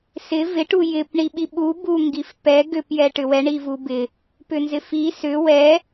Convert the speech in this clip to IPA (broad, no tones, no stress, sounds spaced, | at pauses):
s ɪ v ɪ ʈ u j ɪ p ɳ i ɓ i ɓ u b u ŋ ɡ i f p ɛ ɡ ʏ p j ɛ ʈ ʏ w ɛ ɳ i v u b ɪ | p ʏ n z ɪ f i s ʏ w ɛ